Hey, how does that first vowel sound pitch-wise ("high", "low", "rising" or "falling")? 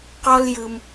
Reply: high